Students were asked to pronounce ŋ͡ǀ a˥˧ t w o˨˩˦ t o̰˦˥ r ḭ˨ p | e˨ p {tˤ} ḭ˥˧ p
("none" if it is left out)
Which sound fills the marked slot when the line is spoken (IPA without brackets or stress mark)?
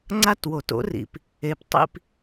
tˤ